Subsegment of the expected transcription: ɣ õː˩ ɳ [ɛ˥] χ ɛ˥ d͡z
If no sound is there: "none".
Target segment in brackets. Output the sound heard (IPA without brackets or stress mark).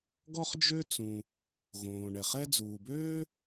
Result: ɛ˩